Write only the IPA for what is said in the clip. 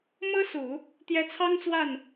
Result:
mɤ˥su˨˩˦ | t̪jɛ˧˥t͡sʰɑ˥ŋt͡swa˥˩n

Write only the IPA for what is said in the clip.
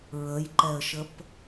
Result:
ɹəjǃɛə̯ʃəp

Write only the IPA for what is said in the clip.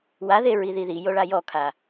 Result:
waðe ɹiðiðijo ɭajɔkʰa

